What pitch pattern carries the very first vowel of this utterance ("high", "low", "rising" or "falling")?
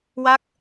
falling